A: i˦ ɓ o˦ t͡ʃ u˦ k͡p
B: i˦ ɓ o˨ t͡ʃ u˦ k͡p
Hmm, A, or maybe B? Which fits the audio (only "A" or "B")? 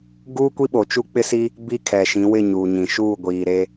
B